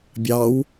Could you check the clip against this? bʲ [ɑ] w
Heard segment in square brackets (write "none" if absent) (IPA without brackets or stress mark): ɑ